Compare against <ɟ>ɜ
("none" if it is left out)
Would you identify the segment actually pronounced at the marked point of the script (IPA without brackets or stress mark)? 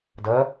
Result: d